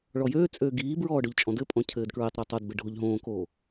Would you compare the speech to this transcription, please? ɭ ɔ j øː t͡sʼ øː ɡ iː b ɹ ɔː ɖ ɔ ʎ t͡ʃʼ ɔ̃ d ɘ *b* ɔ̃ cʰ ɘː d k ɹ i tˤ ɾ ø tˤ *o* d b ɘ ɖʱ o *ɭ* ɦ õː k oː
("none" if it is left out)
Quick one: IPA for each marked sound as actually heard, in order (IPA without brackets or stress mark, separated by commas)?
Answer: pʼ, o, ʎ